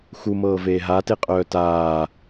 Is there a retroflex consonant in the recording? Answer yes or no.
no